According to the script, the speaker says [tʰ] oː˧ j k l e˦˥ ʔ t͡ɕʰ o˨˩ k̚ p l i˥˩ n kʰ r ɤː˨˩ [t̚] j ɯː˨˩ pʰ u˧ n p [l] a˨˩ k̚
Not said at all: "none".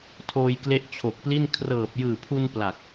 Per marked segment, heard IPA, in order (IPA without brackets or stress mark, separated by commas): tʰ, p̚, l